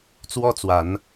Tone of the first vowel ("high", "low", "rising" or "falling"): high